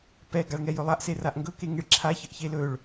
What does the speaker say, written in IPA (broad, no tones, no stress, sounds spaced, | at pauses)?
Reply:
p ɛ ɡ a ɭ ŋ ɛ j ɵ lˠ a ʔ s e r a ʔ ŋ ɡ ɵ k e ŋ e ɭ ǁʰ a ç ə ʔ ç e l ɵ ɭ